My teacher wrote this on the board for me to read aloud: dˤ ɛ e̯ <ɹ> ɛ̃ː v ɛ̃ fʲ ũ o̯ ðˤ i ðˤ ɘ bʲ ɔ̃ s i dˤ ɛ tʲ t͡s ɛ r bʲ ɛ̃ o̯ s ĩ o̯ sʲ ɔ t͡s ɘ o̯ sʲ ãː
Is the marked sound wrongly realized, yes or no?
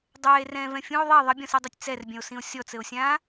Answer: yes